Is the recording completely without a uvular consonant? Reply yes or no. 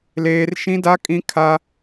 yes